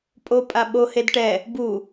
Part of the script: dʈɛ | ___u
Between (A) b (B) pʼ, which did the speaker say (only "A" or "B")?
A